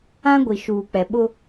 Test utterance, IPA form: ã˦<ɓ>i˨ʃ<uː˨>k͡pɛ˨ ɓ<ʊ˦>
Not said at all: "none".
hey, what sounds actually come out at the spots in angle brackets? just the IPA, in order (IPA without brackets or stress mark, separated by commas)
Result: ɡʷ, uː˨, ʊ˦